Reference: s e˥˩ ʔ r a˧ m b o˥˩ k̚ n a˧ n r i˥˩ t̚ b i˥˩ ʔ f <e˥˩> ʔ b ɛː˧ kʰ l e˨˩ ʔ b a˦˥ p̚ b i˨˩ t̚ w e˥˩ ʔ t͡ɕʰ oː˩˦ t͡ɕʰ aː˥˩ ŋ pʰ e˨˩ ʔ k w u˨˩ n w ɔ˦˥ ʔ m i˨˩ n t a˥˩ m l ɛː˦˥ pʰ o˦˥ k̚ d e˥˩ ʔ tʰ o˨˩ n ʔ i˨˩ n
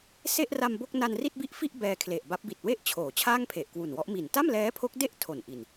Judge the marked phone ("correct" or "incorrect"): incorrect